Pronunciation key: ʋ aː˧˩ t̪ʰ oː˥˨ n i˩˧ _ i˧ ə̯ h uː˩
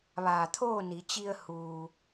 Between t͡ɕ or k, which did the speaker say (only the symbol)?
t͡ɕ